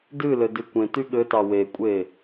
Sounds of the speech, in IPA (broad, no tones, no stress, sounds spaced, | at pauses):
d ɨ l ɘ d ɨ kʷ ẽ t y ɠ ɘ t ɑ w e kʷʼ e